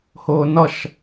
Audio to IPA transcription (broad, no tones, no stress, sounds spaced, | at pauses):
h ʊː n ʌ ʃ